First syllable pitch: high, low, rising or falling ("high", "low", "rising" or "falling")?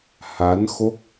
rising